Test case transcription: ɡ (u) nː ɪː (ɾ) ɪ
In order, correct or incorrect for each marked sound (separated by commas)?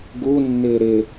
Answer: correct, correct